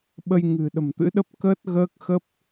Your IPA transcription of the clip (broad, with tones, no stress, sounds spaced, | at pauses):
ɓ ə˧ j ŋ ɨ̤˨˩ ɗ ə̤˨˩ m t̪ ɨ̰˧˥ ɗ ə˦˥ p̚ k əː˦˥ t̚ ɣ əː˦˥ k̚ x ə˦˥ p̚